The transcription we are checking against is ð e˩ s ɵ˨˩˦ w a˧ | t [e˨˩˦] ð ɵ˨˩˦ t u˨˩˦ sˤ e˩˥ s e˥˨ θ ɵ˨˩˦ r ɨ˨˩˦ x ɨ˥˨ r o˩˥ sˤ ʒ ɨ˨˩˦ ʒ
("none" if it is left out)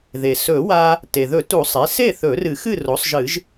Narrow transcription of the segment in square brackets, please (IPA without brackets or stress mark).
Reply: e˩